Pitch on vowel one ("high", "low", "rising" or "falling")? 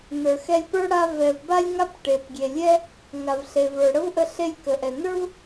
low